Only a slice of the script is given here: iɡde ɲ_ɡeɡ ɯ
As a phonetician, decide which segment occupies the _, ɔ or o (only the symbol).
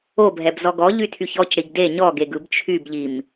ɔ